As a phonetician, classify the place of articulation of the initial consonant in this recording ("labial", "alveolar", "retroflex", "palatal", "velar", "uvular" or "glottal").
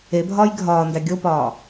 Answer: labial